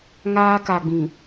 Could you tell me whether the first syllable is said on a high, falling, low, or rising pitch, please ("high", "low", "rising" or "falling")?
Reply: high